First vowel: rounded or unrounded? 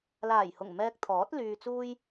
unrounded